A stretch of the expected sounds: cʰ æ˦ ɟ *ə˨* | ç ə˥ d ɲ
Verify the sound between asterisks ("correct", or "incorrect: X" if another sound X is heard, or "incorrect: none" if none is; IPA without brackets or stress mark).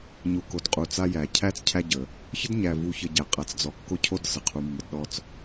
incorrect: ə˩